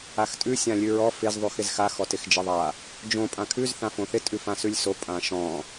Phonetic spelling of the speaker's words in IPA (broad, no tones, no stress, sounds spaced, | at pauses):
a x tʼ ʉ sʲ ã lʲ ʉ ɹ ɔ f ɪ z ðˤ ʉ x ɪ z x a x ɔ t ɪ x d͡ʒ ɪ ðˤ a | d͡ʒ õ pʼ ã kʰ ʉ z θ ã f õ θ ɪ tʼ ʉ f ã s ʉ lʲ s o pʼ ã ʃ ɔ̃